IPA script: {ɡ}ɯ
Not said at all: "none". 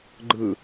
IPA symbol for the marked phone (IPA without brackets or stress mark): ɡ͡ǃ